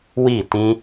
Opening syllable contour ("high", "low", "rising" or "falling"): falling